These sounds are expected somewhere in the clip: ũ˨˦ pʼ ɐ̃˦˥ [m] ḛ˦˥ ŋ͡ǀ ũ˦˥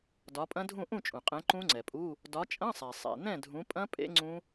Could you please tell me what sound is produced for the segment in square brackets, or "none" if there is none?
pʼ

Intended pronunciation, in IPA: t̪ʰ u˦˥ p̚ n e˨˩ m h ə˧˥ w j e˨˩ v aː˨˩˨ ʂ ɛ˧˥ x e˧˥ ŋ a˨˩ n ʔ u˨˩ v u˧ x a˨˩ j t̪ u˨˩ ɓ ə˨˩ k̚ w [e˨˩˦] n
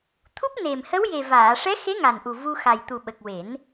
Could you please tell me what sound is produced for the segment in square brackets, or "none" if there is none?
e˨˩˦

